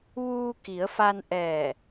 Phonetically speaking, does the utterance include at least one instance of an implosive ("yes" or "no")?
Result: no